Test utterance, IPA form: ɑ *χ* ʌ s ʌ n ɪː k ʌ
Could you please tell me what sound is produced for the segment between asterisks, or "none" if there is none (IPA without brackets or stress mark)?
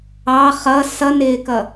χ